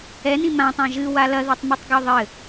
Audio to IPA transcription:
ɛ n ĩ m ã tˤ ã ʒ ɨ w a l ɐ ð e tˤ m ɨ tˤ ɡ ɔ ðˤ ɘ

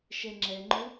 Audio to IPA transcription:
ʃ ɛ ŋ͡ǁ ɛ ŋ͡ǃ ʊ

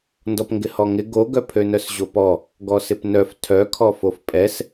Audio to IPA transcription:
n d ɔ p ŋ ɡ ɪ h ɔ ŋ ɪ ɡ o ɡ œ pʰ ø n œ s ʑ o p ɔ | ɡ ɔ s ɪ p n œ f tʰ œ kʰ ɔ f o f pʼ ɛ s

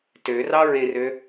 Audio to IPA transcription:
t ø r ɑ ɹ ẽ r ø

